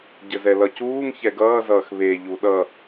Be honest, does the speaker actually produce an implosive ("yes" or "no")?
yes